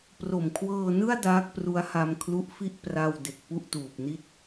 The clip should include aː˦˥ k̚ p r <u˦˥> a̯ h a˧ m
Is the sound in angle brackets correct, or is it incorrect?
correct